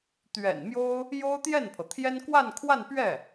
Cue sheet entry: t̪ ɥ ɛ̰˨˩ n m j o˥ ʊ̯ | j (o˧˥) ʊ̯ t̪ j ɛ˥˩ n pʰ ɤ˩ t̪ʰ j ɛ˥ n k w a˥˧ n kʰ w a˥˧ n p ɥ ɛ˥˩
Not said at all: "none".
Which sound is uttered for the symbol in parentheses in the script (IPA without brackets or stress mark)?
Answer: o˥